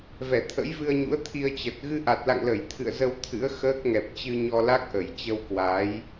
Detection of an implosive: absent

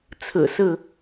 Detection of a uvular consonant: absent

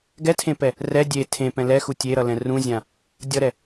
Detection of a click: absent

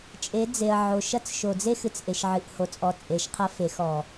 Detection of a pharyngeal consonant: present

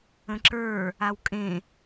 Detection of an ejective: present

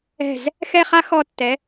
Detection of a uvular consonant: present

